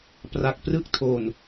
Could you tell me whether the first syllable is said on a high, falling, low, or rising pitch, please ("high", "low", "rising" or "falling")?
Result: low